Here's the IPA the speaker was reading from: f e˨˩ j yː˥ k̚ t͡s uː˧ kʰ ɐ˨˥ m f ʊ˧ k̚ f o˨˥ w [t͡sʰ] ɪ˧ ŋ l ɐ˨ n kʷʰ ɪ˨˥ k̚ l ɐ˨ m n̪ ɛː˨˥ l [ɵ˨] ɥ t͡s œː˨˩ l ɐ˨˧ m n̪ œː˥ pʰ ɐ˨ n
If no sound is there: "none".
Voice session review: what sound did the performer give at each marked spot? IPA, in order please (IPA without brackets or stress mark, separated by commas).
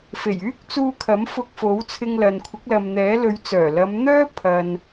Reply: t͡sʰ, ɵ˨˧